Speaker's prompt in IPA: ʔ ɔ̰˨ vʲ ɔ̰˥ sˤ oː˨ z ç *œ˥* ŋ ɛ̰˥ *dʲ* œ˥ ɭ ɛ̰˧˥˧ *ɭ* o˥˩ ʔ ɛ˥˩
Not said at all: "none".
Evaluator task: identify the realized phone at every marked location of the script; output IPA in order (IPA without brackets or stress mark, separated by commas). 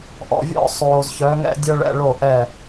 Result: œ˨˦, dʲ, ɭ